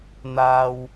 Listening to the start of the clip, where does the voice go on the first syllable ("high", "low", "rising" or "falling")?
high